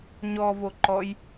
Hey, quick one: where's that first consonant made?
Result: palate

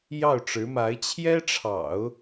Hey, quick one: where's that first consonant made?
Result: palate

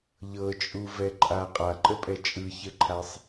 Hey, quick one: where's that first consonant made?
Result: palate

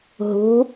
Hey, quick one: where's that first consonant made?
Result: throat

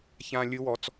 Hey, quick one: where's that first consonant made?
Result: palate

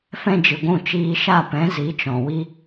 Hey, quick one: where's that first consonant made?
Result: lips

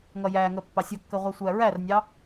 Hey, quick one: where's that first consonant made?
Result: velum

